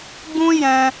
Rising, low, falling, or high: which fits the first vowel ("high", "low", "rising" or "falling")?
high